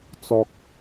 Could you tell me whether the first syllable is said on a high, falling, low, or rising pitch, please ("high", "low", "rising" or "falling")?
low